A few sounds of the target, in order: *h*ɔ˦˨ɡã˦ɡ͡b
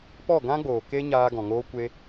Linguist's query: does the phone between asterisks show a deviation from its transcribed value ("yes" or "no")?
yes